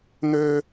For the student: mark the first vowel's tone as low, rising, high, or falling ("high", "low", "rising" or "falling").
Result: high